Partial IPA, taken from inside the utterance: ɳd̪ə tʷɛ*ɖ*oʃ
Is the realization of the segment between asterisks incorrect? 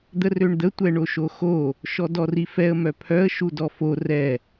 yes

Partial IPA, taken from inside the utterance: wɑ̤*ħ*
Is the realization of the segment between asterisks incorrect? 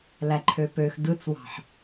no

